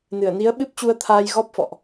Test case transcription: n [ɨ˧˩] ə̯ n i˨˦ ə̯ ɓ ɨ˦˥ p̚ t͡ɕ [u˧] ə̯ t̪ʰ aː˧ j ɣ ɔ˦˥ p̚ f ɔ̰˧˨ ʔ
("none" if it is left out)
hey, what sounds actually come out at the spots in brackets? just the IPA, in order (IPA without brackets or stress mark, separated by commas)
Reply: ɨ˧˩, u˧